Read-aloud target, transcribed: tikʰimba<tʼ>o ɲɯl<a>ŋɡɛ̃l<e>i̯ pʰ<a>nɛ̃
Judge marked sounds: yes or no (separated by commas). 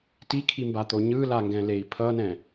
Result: no, yes, yes, no